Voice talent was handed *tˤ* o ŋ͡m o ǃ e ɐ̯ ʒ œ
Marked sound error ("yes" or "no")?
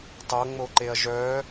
no